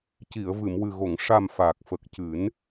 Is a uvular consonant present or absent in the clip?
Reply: absent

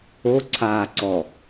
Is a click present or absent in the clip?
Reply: present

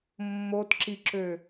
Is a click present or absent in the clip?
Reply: present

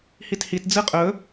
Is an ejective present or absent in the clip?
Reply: present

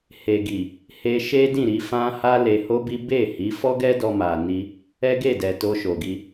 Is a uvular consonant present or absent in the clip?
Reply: absent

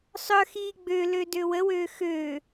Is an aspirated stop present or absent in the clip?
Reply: absent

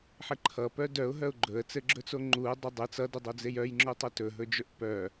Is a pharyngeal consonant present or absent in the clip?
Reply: present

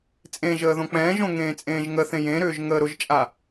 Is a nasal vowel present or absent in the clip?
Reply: present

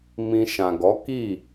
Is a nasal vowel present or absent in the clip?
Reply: present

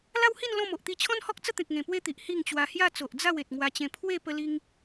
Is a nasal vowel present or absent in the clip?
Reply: present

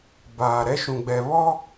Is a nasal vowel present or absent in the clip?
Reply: present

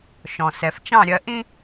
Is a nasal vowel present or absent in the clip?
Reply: present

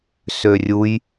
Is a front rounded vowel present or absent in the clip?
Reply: present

